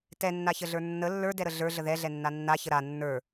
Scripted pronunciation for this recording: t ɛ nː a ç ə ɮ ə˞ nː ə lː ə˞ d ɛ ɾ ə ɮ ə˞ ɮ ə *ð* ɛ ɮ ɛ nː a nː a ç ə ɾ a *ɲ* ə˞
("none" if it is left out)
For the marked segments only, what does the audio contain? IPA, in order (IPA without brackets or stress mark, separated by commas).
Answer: ð, nː